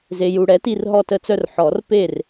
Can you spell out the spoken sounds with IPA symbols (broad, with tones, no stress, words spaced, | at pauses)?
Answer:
ze˨ju˨ɽɛ˩˥ti˦˨r ɦɔ˦˨tə˦˨t͡sœ˦rħɔ˨˩˦r pe˦˨r